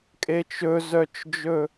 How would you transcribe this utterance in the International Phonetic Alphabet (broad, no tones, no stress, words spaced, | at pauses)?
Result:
kʼet͡ʃɵzœt͡ʃd͡ʒɵ